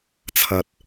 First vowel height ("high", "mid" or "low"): low